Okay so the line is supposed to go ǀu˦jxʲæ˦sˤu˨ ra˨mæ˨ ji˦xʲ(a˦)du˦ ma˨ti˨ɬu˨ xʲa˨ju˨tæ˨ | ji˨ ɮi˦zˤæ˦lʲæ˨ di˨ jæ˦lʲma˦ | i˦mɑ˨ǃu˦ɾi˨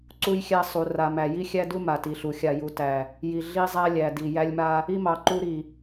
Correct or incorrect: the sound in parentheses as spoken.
incorrect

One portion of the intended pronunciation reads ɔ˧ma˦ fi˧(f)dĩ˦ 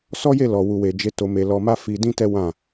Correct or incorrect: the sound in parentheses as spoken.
incorrect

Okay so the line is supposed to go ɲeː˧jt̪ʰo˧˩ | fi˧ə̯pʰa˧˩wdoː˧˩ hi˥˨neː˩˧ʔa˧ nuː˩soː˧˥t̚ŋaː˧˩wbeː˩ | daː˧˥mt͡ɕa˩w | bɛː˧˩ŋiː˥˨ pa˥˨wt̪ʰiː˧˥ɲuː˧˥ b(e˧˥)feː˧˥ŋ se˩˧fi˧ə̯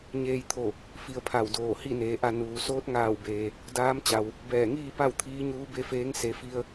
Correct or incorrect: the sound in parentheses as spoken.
correct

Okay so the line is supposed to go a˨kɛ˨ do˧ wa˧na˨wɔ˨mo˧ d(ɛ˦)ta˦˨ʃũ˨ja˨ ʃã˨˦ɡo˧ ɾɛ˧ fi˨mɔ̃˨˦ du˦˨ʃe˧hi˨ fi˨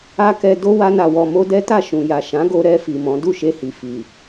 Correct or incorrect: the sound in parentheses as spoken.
correct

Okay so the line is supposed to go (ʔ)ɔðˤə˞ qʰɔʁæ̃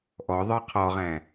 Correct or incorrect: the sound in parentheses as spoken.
correct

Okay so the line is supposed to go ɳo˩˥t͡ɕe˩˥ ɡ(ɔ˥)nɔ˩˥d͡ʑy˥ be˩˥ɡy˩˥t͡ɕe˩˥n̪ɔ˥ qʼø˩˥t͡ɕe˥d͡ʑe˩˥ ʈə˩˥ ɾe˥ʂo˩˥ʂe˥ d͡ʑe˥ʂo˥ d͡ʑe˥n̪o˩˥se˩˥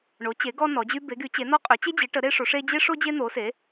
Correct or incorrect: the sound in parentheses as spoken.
correct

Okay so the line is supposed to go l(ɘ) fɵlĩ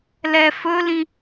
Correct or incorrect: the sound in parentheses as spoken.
incorrect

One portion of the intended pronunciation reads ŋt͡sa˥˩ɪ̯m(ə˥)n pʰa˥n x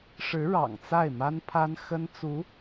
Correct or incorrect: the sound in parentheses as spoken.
incorrect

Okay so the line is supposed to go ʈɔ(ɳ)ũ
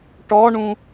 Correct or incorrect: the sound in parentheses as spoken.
correct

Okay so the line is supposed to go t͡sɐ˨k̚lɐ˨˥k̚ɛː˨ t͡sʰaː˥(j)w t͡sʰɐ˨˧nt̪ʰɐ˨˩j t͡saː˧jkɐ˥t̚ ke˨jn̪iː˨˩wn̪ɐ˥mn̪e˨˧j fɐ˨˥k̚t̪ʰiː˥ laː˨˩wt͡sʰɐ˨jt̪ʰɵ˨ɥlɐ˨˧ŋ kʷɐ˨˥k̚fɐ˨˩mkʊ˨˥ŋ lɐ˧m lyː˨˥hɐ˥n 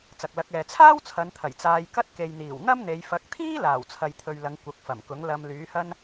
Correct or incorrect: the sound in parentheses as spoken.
incorrect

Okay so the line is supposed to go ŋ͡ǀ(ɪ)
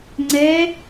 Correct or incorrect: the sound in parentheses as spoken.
incorrect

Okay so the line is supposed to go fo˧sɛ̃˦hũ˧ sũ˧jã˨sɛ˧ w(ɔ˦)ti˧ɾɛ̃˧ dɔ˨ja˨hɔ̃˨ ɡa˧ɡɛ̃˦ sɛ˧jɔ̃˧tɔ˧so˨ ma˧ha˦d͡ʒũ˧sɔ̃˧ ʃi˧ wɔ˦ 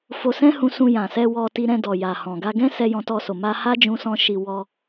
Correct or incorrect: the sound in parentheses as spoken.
incorrect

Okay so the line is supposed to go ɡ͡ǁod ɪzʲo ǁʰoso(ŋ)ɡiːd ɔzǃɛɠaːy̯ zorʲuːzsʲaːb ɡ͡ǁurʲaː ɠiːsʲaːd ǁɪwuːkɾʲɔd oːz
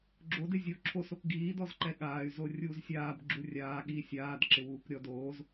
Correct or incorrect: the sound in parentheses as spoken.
incorrect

